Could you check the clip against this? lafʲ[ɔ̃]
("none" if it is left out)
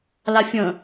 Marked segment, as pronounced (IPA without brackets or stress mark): ə̃